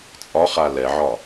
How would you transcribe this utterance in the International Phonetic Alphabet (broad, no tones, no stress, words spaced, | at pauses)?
t͡sʼɒχa lɛʕɒ